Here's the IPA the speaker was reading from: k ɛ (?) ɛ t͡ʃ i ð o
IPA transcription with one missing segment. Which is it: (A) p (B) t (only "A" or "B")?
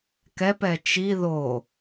A